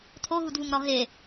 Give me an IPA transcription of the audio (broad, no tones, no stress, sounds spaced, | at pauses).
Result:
tʰ o ɦ u d v u ŋ ɾ ɒ ɦ e